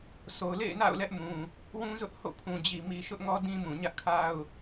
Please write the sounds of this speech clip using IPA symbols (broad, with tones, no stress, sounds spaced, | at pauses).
s o˨ ʊ̯ l ḛ˦˨ ɪ̯ n a̰˦˨ ʊ̯ l ɛ˦ ʔ m ũ˨ | w ũ˦ z ʊ˦ ʔ h o̰˦˨ pʰ ũ˨ d͡ʑ i˨ m i˨ ʃ ʊ˦ ʔ ŋ ɔ˦ d ĩ˦ m ũ˨ ɲ ä˦ ʔ kʰ a˦ ʊ̯